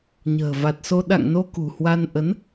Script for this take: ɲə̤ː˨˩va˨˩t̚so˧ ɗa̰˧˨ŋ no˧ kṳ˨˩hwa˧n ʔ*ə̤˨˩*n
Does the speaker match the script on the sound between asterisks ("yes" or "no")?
no